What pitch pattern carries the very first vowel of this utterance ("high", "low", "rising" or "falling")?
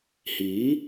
rising